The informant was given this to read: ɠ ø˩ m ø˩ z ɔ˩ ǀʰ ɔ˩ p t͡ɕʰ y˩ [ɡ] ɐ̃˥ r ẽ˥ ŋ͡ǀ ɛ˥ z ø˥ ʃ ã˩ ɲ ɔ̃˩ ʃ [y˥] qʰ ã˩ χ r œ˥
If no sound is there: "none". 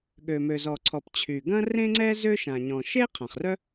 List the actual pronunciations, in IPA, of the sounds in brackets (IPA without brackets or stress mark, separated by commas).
ɡ, e˥